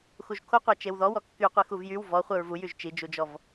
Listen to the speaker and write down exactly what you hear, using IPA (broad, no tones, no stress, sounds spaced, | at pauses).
x u ʒ kʰ o qʷ a t͡ʃ e w ð ɔ w ɔ kː y qʷ i x u v j y w v ɔ χʷ ɛ ɹ v u j y ʒ t͡ʃ i d͡ʒ u d͡ʒ ɔ v